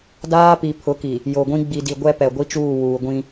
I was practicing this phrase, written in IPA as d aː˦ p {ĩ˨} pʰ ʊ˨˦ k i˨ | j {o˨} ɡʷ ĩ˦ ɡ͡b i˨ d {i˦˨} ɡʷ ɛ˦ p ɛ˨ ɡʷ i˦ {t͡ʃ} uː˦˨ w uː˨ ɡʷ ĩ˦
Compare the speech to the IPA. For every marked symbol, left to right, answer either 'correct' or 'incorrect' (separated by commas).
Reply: incorrect, correct, incorrect, correct